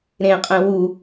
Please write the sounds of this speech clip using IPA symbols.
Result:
ɾ ẽ qʼ ɛ̃ w u

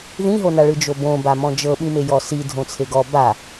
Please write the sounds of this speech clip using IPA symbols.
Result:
ð ĩ ɦ o n a ɭ ɯ d͡ʒ o b õ b a m ɔ̃ d͡ʒ ɤ ɓ ĩ m e j ɔ s i dʱ õ t͡sʰ e ɡ ɔ b a

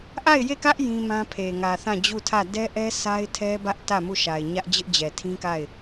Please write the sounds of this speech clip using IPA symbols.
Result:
ʔ a˦˨ ɪ̯ j e˦˨ k ä˦ ʔ j ĩ˦ m ã˦ pʰ e˨ ŋ ä˨ θ ã˦˨ d͡ʑ u˦˨ tʰ ä˦˨ d ɛ˦ ʔ ɛ˦ sʰ a˦ ɪ̯ tʰ ɛ˦ b ä˦ ʔ t ä˦˨ m u˦˨ ʃ a˨ ɪ̯ ɲ ä˦ ʔ d͡ʑ ɪ˦ ʔ d͡ʑ ɛ˨ tʰ ĩ˦ k a˦˨ ɪ̯

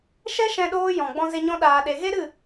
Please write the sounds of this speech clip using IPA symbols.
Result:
ʃ ɛ˦ ʃ ɛ̃˧ ɗ oː˧ j ɔ̃˨ ɡ͡b ɔ̃˧ z e˧ ɲ ɔ̃˧ ɗ aː˨ ɗ e˨ ɣ e˦ ɾ ɨ˦˨

